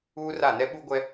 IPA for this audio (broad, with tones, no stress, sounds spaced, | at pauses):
uː˦ r a˦˨ n ɛ˦ ɓ u˦ ɡʷ ɛ˦